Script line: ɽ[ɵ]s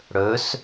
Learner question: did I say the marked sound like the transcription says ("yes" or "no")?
yes